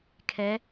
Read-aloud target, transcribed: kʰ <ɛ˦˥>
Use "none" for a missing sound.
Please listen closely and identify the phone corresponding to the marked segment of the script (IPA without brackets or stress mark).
ɛ˦˥